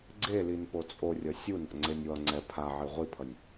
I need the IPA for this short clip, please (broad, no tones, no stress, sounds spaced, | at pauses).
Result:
ɡ͡ǀ e l i n p o t͡sʼ o rʲ ʌ sʲ u n a̰ ŋ͡ǀ e nʲ w ʌ ŋ͡ǀ ɛ pʰ a ʕ i ʁʷ i pʰ ʌ nʲ